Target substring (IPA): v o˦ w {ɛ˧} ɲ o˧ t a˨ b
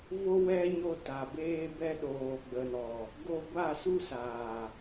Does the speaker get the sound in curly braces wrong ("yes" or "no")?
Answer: yes